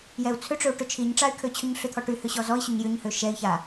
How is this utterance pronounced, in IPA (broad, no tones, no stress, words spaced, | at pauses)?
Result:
jɛu̯t͡sʰʏʈ͡ʂʏu̯ ʈʏt͡ʃʰiɲʈ͡ʂay̯ kʰøt͡ɕʰʏɲɬʏt̪ʰɔ ʈyhʏ ɕɔzɔi̯ɕʏɲ jʏɲhø ʃɛi̯ça